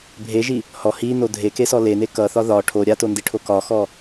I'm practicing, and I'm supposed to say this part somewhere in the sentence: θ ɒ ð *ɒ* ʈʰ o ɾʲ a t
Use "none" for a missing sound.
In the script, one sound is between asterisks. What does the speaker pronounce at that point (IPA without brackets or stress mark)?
ɒ